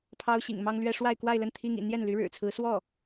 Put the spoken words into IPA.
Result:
pʰ ɑ˥ ʊ̯ ɕ ḭ˨˩ ŋ m ɑ˥ ŋ l ɥ ɛ˥ ʂ w a˥˧ ɪ̯ k w a˥˧ ɪ̯ l ə˥˩ n t̪ʰ i˥ ŋ ḭ˨˩ n̪ j ɛ˥˩ n l y˧˥ ɻ ɻ̩˨˩ t͡sʰ ɹ̩˧˥ s w ɔ˥˩

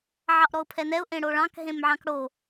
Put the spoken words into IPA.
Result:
ʕ ɑ ʔ ɾ ɔ ʊ̯ pʰ ɛ n ɛ ʊ̯ ʔ ẽ ɽ o ɭ ɑ̃ k ɦ ẽ m ʕ ɑ̃ k ɽ o

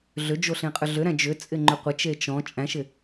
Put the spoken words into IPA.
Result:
ɮ ʏ d͡ʒ o ɬ ẽ qʼ ʏ ɮ ʏ ɾ æ̃ d͡ʒ ʏ t͡sʼ ɪ ŋ͡ǃ ʏ qʷ ɪ t͡ʃ e t͡ʃ ɔ̃ t͡ʃʼ æ̃ ʃ ɪ

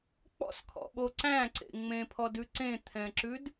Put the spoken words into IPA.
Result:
k͡p ɔ̰ s kʰ ɔ̰ ɓ o ǀ æ̃ ǀ ḛ ŋ͡m ẽ pʰ ɔ d ʉ ǀ ẽ t̪ʰ ɛ̃ ǁ ʉ d

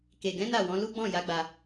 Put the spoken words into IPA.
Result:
k e˨ ɡ ɛ̃˨˦ n a˦˨ w ɔ̃˨˦ l u˦ ɡ͡b ɔ̃˦˨ j a˨˦ ɡ͡b a˧

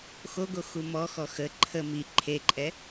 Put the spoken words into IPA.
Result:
x o ɡ o x u m ɔ x ɔ x ə ǃʰ ə m i ǃʰ e ǃʼ ɛ

